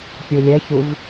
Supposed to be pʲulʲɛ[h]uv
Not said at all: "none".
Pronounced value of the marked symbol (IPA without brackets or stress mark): ç